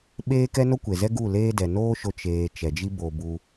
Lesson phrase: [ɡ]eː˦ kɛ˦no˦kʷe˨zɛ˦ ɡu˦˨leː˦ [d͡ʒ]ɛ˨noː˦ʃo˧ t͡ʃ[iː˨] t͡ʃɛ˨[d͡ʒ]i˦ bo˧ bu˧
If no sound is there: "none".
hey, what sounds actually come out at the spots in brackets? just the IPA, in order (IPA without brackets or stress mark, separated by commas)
ɓ, d, eː˨, d͡ʒ